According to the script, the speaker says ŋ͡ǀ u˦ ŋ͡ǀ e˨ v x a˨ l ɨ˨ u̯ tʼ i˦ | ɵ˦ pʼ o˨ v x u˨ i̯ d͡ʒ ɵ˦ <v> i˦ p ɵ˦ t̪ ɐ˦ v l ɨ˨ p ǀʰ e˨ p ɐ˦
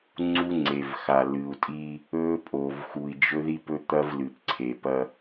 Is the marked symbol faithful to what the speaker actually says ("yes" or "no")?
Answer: no